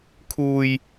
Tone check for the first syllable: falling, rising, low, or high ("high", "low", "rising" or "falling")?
low